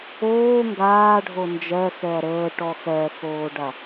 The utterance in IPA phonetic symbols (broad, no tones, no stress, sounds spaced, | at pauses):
oː ŋ ɡ aː ɖʱ o n d͡ʒ ɜ x ɛ ɐ̯ ɾ əː ʈ ɔ x ɜ x oː ɖ a